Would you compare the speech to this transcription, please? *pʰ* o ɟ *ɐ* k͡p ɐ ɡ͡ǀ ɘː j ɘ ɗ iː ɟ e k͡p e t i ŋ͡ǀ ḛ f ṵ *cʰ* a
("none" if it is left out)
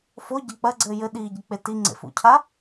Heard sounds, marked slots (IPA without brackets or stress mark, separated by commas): f, ɐ, cʰ